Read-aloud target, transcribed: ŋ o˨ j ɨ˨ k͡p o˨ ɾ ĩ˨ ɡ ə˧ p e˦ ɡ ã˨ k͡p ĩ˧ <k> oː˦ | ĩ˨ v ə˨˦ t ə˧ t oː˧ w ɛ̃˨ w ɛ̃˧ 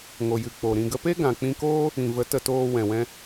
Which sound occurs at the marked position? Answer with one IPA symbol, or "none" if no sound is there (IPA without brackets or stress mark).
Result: k